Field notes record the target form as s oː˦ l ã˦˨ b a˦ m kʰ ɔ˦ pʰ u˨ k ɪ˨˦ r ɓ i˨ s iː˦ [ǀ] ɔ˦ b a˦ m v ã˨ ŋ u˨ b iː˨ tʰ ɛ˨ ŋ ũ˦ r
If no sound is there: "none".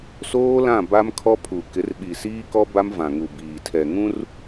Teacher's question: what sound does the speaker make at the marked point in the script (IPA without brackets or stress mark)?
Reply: k